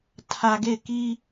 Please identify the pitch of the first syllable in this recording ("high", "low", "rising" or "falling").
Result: low